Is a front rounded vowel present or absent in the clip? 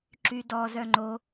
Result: present